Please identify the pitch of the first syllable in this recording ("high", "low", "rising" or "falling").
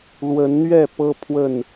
rising